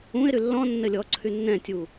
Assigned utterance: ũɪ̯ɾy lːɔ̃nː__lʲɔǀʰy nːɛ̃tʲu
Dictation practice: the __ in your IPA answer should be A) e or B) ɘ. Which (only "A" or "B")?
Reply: B